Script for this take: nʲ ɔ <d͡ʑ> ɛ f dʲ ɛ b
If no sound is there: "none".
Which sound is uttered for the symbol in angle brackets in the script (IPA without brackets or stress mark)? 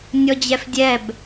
d͡ʑ